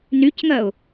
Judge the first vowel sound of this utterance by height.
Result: high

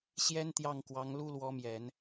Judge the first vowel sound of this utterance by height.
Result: mid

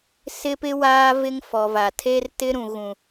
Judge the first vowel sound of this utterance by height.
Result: high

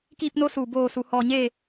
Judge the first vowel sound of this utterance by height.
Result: high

